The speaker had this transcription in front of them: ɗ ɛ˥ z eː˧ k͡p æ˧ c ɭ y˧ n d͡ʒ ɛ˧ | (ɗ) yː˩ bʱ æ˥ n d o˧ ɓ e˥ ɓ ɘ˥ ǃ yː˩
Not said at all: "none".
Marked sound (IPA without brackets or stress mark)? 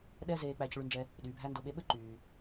ɗ